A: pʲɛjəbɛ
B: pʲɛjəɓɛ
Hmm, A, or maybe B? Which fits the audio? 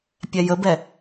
A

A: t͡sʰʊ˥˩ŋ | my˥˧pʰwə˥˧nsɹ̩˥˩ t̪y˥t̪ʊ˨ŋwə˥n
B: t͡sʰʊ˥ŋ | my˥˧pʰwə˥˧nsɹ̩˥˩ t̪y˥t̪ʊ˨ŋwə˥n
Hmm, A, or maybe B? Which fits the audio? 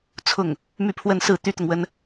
A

